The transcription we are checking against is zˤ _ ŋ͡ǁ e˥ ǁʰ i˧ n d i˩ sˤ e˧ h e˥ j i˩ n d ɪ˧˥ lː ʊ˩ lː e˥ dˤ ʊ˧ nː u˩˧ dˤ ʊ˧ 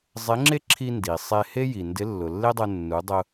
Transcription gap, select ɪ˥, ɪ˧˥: ɪ˧˥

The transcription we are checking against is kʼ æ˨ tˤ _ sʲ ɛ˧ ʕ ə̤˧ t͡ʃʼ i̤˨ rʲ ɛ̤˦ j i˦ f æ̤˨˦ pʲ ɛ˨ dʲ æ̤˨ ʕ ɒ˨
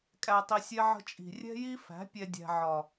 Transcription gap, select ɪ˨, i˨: i˨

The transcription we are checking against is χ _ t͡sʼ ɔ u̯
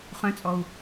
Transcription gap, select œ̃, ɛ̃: œ̃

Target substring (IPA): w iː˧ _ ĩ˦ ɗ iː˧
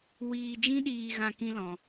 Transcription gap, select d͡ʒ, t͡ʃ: d͡ʒ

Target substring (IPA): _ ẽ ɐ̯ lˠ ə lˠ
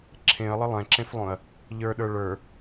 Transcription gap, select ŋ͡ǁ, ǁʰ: ǁʰ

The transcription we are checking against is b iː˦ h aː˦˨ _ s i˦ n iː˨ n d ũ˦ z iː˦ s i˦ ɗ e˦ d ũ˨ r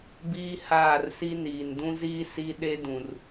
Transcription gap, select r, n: r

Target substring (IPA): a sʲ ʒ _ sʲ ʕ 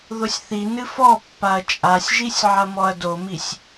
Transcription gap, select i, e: i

